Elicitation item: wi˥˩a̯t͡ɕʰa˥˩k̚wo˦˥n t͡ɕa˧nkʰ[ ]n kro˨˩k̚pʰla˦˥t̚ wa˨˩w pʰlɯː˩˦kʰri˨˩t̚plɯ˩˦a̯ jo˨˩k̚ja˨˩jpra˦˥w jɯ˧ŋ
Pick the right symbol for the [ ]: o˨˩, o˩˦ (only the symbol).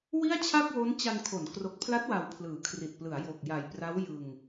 o˩˦